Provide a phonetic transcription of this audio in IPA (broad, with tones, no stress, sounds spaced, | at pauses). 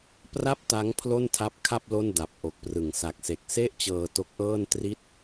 p r a˥˩ p̚ t a˦˥ ŋ pʰ l o˥˩ n tʰ a˦˥ p̚ kʰ a˥˩ p̚ l o˥˩ n d a˨˩ p̚ ʔ o˨˩ k̚ p r ɯ˨˩ ŋ s a˨˩ k̚ s e˨˩ k̚ s e˥˩ ʔ t͡ɕ ɤː˧ t o˦˥ k̚ ʔ ɤː˥˩ n t r i˥˩ t̚